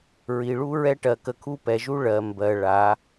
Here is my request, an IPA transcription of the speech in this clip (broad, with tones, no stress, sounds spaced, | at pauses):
ɹ i˨ ɭ u˦ ɹ ɛ˦ ʈ ɜ˨ k ə˨ kʰ u˦ p ɛ˨ ʒ u˦ ɭ ɜ˨ m b ɜ˨ ɭ a˨˦